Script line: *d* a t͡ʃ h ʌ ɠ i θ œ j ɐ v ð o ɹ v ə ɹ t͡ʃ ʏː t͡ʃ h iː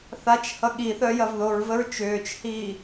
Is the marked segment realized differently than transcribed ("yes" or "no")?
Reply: yes